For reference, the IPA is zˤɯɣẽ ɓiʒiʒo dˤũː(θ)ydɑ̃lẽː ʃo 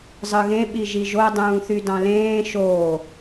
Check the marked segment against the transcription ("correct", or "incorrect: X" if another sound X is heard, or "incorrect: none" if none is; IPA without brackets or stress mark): correct